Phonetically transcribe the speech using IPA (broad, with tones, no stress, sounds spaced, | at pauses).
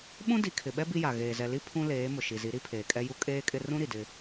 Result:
ɓ ũ˦ d i˨ kʰ ɪ˨ ɓ ɛ˦ b i˦ j a˨ ɣ eː˨ z ɛ˨ l i˦ pʰ ũ˦ l eː˨˦ m ʊ˨ ʃ i˨ z i˨˦ ɾ i˦ pʰ eː˨ kʼ ɛ˦ j u˦ kʼ eː˦ kʼ ɪ˦ r ũ˦ ɾ i˨ d ɪ˦